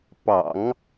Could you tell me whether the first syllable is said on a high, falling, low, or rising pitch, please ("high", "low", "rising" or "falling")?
low